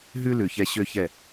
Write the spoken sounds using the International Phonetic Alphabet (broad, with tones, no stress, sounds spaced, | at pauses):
ɦ ʉ˦ l ʉ˨ ç ɛ˧ ɕ ø˦ ç ɛ˦˨